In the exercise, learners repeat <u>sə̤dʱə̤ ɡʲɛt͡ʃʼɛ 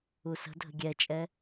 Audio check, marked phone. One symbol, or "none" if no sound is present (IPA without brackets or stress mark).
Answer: u